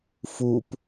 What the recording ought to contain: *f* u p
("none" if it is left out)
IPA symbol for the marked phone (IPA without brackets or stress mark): f